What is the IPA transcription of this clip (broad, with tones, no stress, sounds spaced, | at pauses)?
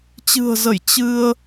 t͡ɕ ɨ̤˨˩ ə̯ z ə˧˩ j t͡ɕ ɨ˧ ə̯